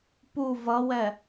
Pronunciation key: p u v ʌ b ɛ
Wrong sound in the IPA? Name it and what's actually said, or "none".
b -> w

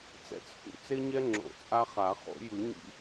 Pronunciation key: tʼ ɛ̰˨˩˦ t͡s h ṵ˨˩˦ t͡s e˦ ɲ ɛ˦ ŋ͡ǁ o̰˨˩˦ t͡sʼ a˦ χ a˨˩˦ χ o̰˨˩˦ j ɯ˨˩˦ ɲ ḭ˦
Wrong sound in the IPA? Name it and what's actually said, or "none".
tʼ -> t͡s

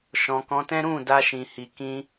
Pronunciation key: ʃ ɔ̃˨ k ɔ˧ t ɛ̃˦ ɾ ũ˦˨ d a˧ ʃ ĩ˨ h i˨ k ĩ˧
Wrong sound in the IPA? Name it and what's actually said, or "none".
ɔ˧ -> ɔ̃˧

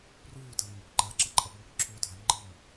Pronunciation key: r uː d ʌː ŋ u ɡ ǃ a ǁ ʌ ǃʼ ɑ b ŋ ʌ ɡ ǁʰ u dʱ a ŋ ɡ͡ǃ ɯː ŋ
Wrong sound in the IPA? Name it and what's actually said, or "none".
ɑ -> ʌ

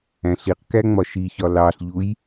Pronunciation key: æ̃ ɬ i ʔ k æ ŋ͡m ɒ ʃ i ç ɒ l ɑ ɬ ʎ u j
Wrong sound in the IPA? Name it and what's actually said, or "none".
ʔ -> q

